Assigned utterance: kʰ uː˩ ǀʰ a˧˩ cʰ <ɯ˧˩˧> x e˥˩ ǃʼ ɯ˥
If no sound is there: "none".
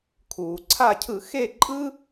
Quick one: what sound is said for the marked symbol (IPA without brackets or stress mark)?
ɯ˧˩˧